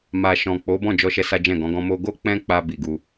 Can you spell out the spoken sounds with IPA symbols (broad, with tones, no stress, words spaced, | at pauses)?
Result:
ma˨ ʃɔ̃˨k͡po˨˦ bɔ̃˦˨d͡ʒɔ˧ʃɛ˧ sa˦d͡ʒɛ̃˦˨ɡɔ̃˨˦ɡɔ̃˦ mo˧ɡo˦ k͡pɛ̃˦k͡pa˧ bi˨ɡu˧